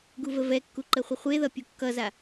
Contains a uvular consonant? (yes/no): yes